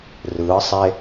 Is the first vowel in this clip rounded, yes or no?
no